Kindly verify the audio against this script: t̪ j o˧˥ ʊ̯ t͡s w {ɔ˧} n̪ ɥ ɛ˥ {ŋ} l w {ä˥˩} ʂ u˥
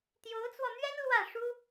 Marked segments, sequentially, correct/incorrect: correct, incorrect: n, correct

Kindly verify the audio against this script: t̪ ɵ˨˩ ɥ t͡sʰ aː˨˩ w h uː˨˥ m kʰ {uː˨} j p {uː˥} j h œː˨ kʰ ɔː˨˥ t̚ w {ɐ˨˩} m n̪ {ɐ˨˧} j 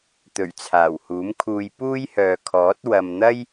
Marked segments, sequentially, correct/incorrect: incorrect: uː˧, correct, incorrect: ɐ˨, incorrect: ɐ˥

